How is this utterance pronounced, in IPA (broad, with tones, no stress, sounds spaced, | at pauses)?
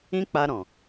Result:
ĩ˦ k͡p a˧ ɾ ɔ̃˨